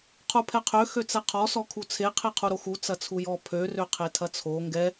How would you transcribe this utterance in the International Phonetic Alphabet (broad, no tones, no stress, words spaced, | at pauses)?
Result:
qʰupʰɛqʰø xøt͡sɛqʰɔ sɔkʰut͡sʰe qʰeqʰuɾoxu t͡sɐt͡sʰujɔ pʰø røqʰetʰɐt͡sʰo ŋɡɛ